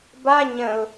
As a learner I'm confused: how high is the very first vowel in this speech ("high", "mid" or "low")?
low